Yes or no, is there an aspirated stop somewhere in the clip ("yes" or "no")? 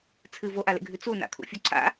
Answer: yes